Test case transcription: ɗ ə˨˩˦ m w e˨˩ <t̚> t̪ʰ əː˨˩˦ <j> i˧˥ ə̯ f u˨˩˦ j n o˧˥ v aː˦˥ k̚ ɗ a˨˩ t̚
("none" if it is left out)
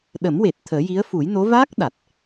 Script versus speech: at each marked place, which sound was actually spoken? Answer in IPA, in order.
t̚, j

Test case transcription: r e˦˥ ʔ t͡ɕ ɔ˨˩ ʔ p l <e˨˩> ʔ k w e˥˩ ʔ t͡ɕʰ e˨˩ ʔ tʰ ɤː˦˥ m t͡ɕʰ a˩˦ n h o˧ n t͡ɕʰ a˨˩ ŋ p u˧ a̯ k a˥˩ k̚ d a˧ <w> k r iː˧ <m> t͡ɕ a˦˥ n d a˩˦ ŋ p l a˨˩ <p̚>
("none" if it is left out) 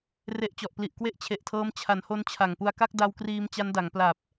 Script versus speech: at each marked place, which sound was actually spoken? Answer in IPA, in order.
i˨˩, w, m, p̚

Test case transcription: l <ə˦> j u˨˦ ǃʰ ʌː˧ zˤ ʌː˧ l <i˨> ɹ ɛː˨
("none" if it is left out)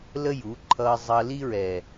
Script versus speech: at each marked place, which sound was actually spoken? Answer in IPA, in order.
ə˦, i˦

